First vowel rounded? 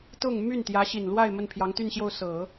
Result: yes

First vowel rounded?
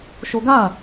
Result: yes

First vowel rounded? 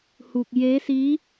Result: yes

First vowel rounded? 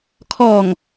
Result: yes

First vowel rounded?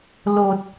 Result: yes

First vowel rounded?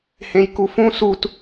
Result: no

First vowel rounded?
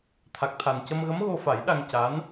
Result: no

